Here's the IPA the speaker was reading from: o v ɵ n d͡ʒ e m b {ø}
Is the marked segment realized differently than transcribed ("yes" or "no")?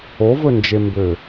no